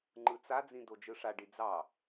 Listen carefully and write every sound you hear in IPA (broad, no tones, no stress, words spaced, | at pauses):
ŋ͡ǃɯt͡sad͡zĩ dod͡ʒɯʂaɖi d͡zɑ